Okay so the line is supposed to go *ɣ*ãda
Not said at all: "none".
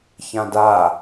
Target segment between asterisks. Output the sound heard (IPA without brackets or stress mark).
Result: ç